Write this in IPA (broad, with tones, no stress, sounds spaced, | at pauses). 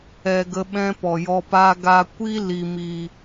ɛ˧ ɡ ə˧ ɓ ɛ̃˦ p ɔ˨ j ɔ˧ p a˦ ɡ a˧ kʷ i˦ l i˨ m i˨